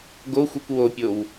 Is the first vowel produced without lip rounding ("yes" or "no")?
no